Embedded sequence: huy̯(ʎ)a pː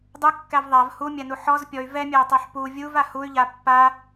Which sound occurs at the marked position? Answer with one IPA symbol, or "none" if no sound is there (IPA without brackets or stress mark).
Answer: ʎ